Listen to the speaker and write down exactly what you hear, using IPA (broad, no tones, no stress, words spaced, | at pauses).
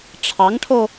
ʈ͡ʂʰɑŋʈʰo